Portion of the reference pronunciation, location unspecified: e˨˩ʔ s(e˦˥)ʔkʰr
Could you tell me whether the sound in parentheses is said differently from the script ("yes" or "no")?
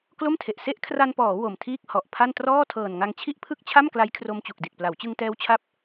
no